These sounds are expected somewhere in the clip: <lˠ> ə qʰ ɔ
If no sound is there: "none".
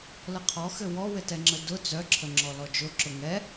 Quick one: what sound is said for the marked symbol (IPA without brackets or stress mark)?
l